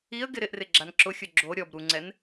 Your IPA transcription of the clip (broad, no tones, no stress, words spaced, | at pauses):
iə̯ɡɪ ɾɪʔrɪɡ͡ǁan ǁʊxʲʊ ɡ͡ǁo ɾʲɔb ɾuŋ͡ǀɛn